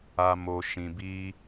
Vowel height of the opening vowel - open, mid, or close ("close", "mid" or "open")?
open